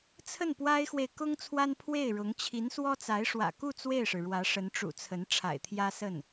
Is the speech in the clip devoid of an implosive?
yes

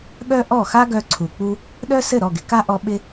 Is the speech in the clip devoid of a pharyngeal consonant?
yes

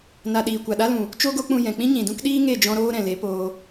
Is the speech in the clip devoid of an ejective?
yes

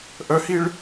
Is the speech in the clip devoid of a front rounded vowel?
no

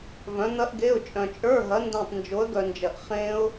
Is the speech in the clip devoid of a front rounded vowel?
no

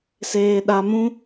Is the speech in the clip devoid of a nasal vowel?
no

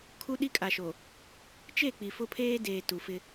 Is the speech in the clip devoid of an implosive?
no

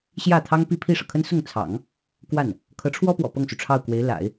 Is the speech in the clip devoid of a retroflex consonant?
no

